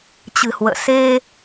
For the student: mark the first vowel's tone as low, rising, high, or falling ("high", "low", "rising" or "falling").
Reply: low